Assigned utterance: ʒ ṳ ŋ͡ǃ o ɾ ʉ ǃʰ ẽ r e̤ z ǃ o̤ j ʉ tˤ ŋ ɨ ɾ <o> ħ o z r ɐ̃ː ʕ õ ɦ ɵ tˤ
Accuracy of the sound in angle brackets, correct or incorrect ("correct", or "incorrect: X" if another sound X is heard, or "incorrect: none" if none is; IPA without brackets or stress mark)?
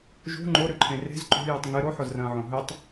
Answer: correct